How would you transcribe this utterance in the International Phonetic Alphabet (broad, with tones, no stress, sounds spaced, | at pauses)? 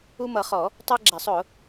u˦ m ʌ˨˩˦ χ ɔ˨˩˦ | tˤ ɛ˦ ɡ͡ǁ æ˨˩˦ sˤ ʊ˨˩˦